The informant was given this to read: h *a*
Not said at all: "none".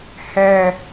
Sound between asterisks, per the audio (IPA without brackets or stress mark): æ